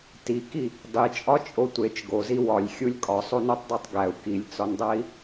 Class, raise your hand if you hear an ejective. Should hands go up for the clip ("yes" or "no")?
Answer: yes